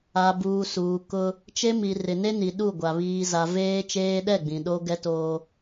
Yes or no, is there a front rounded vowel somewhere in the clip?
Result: no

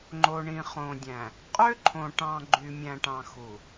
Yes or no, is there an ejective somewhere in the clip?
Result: yes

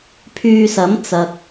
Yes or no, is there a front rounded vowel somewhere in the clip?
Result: yes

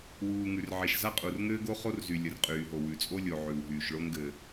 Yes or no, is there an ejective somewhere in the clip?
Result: yes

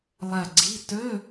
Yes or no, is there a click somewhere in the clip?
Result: yes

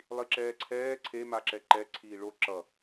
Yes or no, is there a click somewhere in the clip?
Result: yes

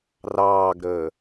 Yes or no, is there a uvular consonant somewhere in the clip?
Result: no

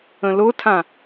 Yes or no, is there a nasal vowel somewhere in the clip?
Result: yes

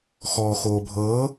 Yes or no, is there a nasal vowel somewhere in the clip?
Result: no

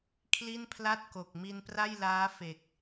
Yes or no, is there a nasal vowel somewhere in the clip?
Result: no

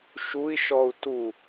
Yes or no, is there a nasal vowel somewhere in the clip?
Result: no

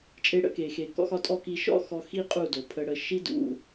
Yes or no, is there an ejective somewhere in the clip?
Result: yes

